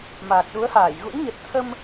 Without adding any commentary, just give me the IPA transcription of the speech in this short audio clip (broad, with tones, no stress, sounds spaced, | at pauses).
m aː˨˩ k̚ ɗ u˨˦ ə̯ h aː˧˩ j ɣ ṵ˧˥ n ɲ ə˨˩ t̚ t̪ʰ ə˧ m